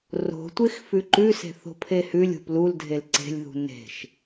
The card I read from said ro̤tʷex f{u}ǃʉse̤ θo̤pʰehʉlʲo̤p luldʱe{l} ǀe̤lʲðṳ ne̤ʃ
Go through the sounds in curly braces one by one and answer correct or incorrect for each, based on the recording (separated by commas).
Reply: incorrect, correct